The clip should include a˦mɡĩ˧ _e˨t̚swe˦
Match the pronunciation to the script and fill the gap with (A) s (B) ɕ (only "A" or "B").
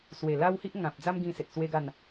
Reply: A